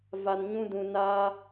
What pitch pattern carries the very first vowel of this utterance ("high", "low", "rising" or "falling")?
low